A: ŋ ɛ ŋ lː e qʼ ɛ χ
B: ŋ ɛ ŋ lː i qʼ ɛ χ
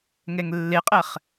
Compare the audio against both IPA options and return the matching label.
A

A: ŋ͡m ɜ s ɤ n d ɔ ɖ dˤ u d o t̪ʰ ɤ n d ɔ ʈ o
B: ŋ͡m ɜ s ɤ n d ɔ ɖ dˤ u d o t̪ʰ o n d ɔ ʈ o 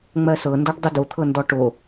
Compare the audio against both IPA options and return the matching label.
A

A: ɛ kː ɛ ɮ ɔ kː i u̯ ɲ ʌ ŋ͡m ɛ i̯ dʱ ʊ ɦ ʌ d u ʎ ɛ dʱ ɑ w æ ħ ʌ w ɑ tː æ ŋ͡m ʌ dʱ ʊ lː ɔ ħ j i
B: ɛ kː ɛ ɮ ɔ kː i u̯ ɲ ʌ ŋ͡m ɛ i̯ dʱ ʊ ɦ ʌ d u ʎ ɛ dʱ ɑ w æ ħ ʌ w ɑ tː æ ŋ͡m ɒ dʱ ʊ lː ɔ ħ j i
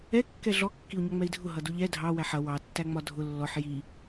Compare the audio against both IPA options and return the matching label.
B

